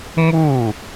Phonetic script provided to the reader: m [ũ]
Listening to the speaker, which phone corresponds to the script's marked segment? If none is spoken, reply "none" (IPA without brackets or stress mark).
u